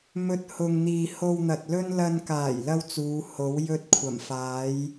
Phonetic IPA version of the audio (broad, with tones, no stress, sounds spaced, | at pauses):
m ɵ˧ t̚ h ʊ˨ ŋ n̪ iː˨ h o˧ w n̪ ɐ˨ t̚ l ɵ˥ n l ɐ˧ n k aː˨˩ j l ɐ˥ w t͡s uː˨˧ h o˨˥ w j ɵ˥ t̚ kʷʰ ɐ˨˩ m f aː˨˥ j